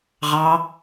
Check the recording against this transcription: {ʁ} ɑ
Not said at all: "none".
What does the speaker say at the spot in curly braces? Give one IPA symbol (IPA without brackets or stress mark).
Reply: ʁ